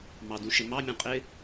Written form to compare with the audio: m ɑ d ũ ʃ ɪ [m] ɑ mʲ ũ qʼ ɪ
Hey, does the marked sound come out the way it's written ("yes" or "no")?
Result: yes